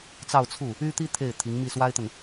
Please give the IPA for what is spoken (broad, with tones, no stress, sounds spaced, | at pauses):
t͡s ɑ˥˧ ʊ̯ t͡sʰ u˥˩ | y˥ t̪ i˥ t̪ʰ e˥˩ ɪ̯ t̪ʰ i˧˥ ŋ m i˥˩ s w a˥ ɪ̯ t̪ ə˨ n